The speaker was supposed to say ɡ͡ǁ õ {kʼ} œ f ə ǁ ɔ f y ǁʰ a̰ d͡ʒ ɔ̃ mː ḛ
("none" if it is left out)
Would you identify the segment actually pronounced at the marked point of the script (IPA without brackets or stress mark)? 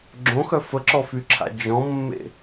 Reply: x